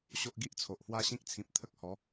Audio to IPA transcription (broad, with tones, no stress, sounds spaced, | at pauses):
ɕ o˦ ʔ ɡ i˦ ʔ t͡sʰ o˨ ʔ h w a˦ ɕ ĩ˦ k̚ t͡sʰ ĩ˨ p̚ t̪ʰ ə˦ k̚ h ɔ˨˦